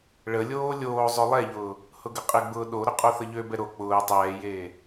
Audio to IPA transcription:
ɭ ə lʲ oː lʲ oː zˤ ø lˠ ɛ ʎ ʊː | h ʊ ɡ ə qʼ ɪ ɡ͡b ʊː ɗ o ɾ ʊ qʼ o θ ə ʎ ø b ɛ ɾ o k͡p ʊː tˤ ɛː j eː

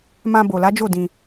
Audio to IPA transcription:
m ã˧ b o˨ l a˨˦ d͡ʒ o˦˨ d ĩ˧

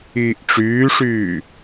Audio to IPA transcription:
iː ʔ ʈ͡ʂ yː ʂ yː

